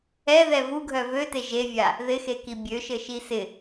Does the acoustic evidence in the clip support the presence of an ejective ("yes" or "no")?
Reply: no